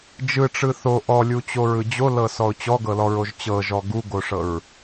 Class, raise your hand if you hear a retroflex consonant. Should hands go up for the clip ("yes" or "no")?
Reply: yes